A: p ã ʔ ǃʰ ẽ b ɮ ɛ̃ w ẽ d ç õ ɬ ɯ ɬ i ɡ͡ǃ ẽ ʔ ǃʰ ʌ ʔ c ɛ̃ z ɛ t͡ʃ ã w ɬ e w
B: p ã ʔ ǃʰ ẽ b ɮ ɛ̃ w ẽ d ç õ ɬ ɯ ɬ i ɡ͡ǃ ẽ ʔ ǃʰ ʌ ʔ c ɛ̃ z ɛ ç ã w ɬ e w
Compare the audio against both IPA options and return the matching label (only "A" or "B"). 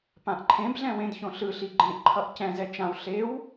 A